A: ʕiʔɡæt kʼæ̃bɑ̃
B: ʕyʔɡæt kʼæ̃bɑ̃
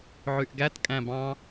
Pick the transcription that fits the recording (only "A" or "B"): B